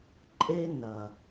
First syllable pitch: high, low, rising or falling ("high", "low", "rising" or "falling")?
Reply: high